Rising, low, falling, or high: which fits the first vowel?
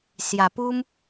low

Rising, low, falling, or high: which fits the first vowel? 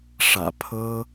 low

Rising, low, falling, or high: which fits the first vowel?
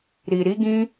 low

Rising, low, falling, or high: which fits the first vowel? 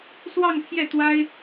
falling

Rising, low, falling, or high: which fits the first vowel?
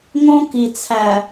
high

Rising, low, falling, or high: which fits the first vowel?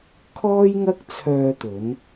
high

